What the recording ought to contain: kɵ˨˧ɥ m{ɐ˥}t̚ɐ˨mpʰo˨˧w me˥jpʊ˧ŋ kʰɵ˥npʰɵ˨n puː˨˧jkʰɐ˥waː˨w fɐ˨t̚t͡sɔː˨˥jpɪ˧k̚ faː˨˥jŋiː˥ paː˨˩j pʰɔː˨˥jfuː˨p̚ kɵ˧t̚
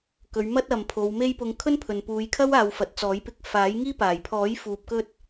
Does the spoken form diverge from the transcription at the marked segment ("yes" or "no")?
no